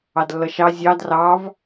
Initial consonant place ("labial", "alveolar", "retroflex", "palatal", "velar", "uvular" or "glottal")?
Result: alveolar